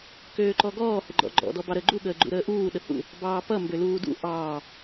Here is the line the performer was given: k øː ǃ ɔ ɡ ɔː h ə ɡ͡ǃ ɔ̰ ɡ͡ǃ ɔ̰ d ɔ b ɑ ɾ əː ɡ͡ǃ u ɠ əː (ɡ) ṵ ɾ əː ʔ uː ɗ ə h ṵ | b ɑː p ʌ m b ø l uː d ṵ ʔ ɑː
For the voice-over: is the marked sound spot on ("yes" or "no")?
no